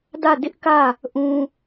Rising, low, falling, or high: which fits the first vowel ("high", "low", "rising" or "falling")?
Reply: falling